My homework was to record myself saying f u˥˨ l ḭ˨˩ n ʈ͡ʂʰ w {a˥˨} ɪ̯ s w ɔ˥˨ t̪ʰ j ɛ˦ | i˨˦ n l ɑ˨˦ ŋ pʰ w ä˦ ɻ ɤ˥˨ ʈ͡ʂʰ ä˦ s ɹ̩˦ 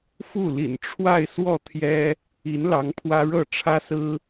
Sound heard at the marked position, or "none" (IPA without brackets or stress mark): a˥˨